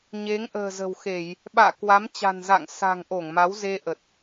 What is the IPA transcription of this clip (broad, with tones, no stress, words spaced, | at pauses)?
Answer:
ɲe˨˦ŋʔə̤ː˨˩zə̤˨˩wxe˧˩˨j | ɓa̰ː˧˨kwa˨˦mt͡ɕa̤˨˩nza̰˧˨ŋ sa̤˨˩ŋ ʔo˧˩ŋma˨˦w ze˧ʔə˨˩t̚